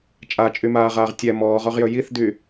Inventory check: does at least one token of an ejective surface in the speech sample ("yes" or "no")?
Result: yes